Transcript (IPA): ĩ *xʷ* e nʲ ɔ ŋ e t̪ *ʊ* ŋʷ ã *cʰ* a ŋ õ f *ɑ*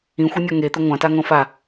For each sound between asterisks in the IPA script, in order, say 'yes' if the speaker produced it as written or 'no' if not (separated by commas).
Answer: yes, yes, no, no